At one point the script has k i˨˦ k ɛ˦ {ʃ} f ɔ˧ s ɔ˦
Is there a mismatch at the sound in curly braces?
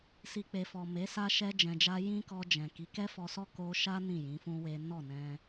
yes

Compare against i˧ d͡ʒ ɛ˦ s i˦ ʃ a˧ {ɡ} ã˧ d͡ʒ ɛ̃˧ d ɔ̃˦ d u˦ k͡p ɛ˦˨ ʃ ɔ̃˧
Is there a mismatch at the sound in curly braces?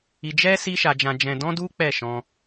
yes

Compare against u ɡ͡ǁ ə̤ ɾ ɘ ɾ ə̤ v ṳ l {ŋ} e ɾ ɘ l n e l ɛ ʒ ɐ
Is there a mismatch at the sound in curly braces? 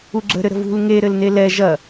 no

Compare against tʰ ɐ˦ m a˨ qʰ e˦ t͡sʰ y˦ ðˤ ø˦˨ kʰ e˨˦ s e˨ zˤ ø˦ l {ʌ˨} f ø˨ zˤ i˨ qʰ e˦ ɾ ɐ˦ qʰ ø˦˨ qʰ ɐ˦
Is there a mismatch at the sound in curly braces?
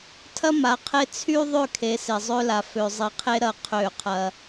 yes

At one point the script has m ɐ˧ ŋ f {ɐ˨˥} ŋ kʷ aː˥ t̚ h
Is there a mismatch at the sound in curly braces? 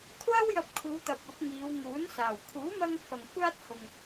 yes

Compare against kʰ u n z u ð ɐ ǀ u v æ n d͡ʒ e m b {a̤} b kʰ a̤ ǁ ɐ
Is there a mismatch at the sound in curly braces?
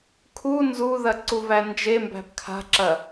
yes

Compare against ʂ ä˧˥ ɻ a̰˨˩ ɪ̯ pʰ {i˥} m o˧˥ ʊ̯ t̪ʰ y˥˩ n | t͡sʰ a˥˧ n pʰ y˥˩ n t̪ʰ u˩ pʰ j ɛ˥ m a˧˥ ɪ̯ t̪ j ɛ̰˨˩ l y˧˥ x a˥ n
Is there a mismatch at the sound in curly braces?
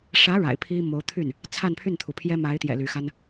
no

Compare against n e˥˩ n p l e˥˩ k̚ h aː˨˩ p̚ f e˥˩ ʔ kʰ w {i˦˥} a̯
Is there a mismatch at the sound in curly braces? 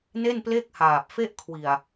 yes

